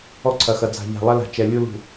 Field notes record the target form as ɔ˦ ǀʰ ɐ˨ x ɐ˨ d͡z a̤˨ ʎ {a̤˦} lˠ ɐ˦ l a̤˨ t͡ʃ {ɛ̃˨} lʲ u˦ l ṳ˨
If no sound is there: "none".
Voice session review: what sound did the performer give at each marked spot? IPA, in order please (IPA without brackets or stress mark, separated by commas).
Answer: a̤˨, ɛ˨